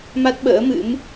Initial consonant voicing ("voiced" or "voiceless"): voiced